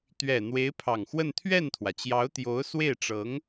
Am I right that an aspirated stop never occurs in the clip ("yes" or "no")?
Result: no